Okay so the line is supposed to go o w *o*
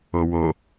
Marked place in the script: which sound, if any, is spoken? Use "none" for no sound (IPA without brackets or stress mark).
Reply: o